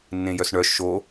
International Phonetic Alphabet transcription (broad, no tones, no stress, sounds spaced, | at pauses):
nː ẽ j œ s ɳ œ ʃ o